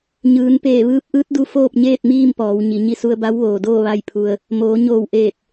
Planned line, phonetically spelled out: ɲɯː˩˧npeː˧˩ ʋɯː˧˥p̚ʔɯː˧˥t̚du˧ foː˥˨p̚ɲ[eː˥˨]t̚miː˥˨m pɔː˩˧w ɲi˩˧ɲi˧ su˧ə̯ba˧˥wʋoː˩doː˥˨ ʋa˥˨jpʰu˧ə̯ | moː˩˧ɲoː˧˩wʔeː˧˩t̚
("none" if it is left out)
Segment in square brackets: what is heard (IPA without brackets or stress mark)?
eː˥˨